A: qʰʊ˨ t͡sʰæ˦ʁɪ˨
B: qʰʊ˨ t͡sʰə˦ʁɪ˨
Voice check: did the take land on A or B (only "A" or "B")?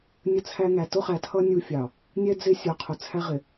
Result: A